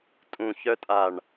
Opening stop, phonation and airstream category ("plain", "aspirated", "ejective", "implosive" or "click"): ejective